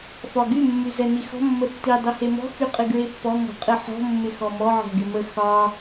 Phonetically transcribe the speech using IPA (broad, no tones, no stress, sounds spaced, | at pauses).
f ɒ ɡ y mː y z ɛ n i x ɔ̤ mː ə tː i dˤ i h e m ɔ̤ x y qʼ ɨ ɡ ɹ e pː ɔ ŋ ɔ̤ qʼ ɨ ħ ɔ̤ mː ɪ x ɔ m ɔ ʕ ɔ̤ ɡ ɪ m ə x ɒ